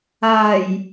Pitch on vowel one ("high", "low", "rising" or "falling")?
low